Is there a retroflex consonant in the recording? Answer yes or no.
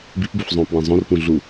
no